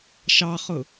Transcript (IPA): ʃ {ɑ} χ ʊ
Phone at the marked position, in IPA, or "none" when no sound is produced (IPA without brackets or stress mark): ɑ